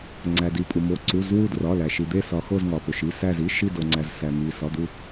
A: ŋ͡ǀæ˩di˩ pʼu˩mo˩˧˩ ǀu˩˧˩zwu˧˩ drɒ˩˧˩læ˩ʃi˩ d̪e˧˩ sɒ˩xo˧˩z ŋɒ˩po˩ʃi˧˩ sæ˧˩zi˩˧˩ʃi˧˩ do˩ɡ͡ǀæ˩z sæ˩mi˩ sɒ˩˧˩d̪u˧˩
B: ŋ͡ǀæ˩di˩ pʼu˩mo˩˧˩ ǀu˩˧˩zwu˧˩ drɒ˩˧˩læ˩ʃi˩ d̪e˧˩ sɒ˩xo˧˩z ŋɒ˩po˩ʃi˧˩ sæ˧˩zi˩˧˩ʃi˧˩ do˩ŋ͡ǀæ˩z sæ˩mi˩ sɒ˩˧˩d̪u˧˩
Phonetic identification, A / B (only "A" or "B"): B